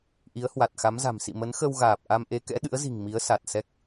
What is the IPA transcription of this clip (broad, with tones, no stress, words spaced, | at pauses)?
ʔi˨˦ə̯hwa˨˩t̚xa˨˦mza̤˨˩m sḭ˧˨mə˨˦nxə˧wɣaː˨˩p̚ ʔa˧mʔe˨˦kɛ̰˧˥ ɗɨ̰˧˥ə̯zi̤˨˩ŋ mi˨˦ə̯sa˨˩t̚ sɛ˦˥k̚